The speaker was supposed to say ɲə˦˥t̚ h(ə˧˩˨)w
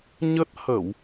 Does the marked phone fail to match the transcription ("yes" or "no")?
no